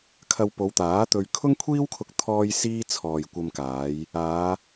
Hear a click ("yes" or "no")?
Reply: no